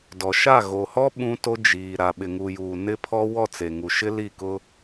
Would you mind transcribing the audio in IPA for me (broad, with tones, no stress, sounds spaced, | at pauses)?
d ɔ˨ ʃ a˦˨ ɣ o˨ h ɔ˦ ɓ ũ˦ t o˦ d͡ʒ iː˨ ɾ a˨ ɓ ɪ˨ ŋ u˨ j uː˨ n ɪ˦ pʰ ɔ˦ w ɔ˦˨ t͡s e˨ ŋ u˨ ʃ ɪ˦ l i˦˨ k ʊ˦